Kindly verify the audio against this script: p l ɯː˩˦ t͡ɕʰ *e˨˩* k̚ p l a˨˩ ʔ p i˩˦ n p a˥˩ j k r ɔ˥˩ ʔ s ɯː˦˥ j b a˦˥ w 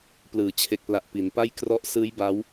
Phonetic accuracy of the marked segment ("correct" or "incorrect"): correct